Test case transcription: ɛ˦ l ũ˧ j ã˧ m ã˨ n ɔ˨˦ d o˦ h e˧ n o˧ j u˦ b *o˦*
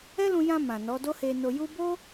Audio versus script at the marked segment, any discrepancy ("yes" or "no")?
no